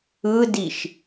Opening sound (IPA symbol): ɯ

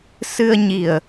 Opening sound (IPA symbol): s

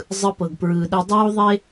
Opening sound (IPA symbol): zˤ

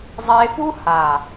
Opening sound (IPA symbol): zˤ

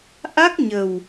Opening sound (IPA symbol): ʔ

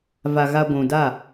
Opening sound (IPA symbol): v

